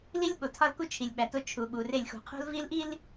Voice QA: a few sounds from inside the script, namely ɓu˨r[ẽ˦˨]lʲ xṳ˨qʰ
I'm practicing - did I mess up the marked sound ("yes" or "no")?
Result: yes